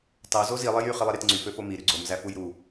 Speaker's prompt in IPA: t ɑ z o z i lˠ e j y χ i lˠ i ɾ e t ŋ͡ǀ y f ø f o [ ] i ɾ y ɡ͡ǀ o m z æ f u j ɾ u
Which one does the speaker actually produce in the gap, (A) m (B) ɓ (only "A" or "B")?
A